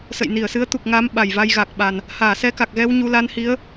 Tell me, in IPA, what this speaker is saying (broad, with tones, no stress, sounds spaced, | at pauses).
s ə̰˧˨ j n i˧˩ ə̯ s ɨ˨˦ ə̯ t̪ u˨˩ k̚ ŋ a˨˦ m ɓ a˨˩ j v a˧ j ɣ a˨˩ k̚ ɓ a˨˩ n | h aː˧˩ s ɛ˧ k a˨˩ k̚ ɣ ɛ˧ w ɲ u˧ l a˧ n h i˨˦ ə̯